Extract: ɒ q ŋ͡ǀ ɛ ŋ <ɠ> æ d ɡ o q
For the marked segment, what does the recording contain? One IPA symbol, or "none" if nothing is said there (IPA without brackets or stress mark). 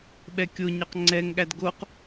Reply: ɠ